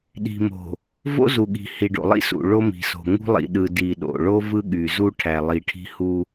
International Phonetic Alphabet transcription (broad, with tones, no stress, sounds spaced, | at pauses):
ɗ i̤˨ m o̤˨ | v o̰˦ z u˨ ɠ i̤˨ h i˨ ɖ o̰˨ lˠ ḭ˦ s ṵ˨ ɭ o˦ m i̤˨ s o̤˨ ŋ ṳ˦ lˠ ḭ˨ ɗ ɯ˨ d i˨ ɗ o̰˨ ɭ o˦ v ɯ˦ ɠ y˨ z u˦ ʈʰ æ˨ lˠ i˨ ʈʰ i̤˦ h u˦